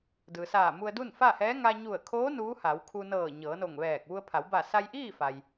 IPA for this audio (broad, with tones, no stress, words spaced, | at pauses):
dɯː˩saː˧˩ mu˧ə̯du˥˨nfa˥˨hɛː˧˥ ŋa˧ɲu˧˩ə̯kʰoː˧˥ nuː˧˥ha˩˧wkʰu˧nɤː˧˩ ɲɤː˩˧no˧˩ŋʋɛː˧˩k̚ ʋu˧ə̯pʰa˩˧w ba˧˩sa˧jʔiː˥˨ fa˩j